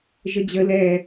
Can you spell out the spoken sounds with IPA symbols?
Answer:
ʒəd͡ʑə lɛ

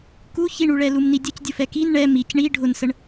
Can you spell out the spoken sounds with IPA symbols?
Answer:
ku çiɳuɭɛlum nidʲʊcdʲʊ fɛkin ɳɛ mic ɳi ɖʱʊnsəɳ

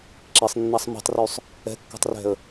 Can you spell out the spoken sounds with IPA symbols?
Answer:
ǁisˤnːasˤ me̤tˤrysˤ | ɛ̤kːɛ̤tˤrɛ̤ə̯

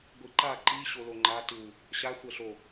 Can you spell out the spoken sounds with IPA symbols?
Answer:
ɡʷiǃa ǃi ɕoloŋ͡ǃa tu | ɕa xʷɛɬo

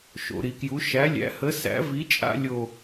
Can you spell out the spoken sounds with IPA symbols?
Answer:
ʃo̰˩˧ɾi˩˧kju˨˥ ʃæ˨˥ lʲæ̰˨˥hə˨˥ sæ̰˨˥vi˨˥t͡ʃʼa̰˦ lʲo˦˨

